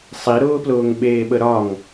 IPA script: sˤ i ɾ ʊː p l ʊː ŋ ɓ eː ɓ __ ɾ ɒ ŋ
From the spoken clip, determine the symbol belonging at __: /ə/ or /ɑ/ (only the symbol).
ə